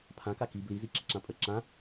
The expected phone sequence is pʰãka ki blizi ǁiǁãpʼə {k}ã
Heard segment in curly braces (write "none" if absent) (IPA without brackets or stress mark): ǁ